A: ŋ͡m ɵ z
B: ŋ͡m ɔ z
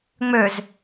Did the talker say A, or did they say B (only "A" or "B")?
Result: A